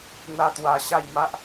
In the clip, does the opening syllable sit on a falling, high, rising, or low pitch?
high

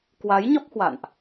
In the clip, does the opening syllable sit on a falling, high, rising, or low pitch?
rising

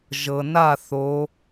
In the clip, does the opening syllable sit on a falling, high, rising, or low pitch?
low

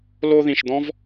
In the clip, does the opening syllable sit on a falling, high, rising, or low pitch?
high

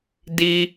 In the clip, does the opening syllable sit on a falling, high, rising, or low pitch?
high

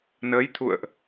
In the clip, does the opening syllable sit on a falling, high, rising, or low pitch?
rising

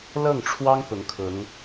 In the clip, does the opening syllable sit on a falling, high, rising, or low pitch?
falling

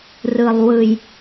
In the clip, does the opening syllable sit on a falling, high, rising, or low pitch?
low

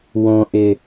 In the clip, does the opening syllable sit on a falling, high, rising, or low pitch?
low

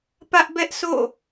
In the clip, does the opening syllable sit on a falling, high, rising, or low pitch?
high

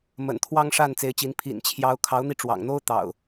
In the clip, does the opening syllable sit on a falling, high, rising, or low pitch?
low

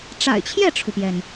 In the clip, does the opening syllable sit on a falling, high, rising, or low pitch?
low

